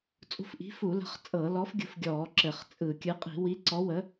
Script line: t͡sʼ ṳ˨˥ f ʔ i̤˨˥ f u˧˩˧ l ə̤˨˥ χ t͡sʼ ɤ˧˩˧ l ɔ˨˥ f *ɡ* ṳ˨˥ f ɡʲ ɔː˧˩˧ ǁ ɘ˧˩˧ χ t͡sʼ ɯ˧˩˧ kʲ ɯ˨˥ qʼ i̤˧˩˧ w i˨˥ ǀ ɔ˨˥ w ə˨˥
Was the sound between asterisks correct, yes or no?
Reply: no